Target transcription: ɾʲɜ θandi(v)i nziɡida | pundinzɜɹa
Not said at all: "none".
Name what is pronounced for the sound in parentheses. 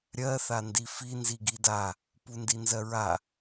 f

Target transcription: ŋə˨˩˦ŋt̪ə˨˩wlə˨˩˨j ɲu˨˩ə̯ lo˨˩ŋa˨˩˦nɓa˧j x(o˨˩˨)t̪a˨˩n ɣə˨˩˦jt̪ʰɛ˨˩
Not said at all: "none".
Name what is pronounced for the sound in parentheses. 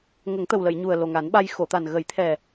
o˨˩˨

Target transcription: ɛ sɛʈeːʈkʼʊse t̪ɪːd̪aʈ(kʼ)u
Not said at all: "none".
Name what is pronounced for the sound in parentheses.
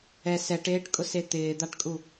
kʼ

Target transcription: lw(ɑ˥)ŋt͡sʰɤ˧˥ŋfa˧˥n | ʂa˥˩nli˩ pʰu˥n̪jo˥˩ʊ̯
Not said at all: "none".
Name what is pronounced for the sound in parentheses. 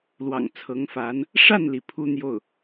ɑ̰˨˩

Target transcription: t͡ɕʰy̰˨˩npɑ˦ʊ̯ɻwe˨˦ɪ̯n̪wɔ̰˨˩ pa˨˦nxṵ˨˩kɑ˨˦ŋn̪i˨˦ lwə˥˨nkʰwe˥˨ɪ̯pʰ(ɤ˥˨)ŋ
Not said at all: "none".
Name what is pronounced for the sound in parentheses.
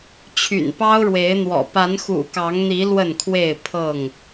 ɤ˥˨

